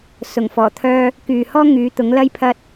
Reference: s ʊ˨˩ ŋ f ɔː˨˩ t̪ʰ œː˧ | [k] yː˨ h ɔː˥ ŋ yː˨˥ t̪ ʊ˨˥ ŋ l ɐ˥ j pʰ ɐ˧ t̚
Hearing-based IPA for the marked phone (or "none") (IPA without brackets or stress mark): k